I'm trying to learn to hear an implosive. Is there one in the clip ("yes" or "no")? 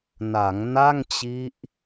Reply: no